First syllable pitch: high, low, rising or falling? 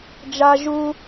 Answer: high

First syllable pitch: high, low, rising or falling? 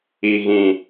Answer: low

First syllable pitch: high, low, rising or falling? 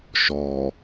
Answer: low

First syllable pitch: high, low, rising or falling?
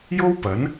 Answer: high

